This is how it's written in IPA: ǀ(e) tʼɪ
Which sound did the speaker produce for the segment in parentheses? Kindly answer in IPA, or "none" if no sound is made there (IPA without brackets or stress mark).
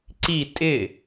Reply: i